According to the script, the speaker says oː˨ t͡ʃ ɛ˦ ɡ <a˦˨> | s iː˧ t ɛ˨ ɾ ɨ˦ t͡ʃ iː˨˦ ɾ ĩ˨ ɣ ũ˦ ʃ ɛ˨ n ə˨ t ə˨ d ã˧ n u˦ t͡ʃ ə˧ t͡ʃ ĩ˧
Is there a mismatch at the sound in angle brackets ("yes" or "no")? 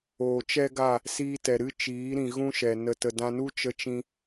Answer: no